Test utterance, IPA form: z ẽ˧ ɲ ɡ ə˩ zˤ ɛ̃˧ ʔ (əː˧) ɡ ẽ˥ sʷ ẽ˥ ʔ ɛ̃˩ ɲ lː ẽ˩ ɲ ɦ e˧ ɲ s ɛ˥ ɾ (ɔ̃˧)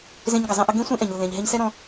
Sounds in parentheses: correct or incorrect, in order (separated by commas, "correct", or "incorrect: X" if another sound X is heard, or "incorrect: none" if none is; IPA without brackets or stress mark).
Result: incorrect: ə˧, correct